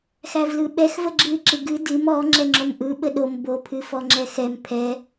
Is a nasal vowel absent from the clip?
yes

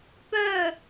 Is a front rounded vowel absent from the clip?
no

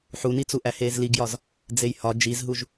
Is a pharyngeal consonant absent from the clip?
no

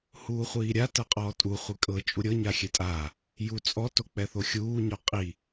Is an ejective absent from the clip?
no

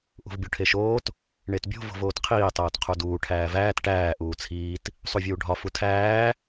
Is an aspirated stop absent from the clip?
no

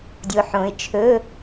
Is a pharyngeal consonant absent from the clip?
no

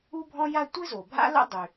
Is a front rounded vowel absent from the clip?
no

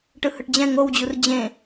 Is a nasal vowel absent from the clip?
no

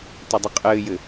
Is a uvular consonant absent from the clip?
no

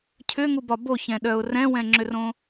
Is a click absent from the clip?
no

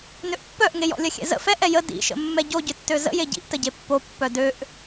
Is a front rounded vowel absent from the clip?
no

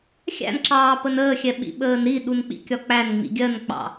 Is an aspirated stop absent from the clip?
yes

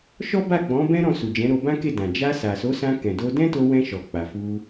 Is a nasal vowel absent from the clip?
no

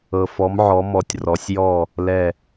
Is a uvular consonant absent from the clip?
yes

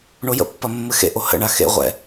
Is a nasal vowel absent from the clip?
yes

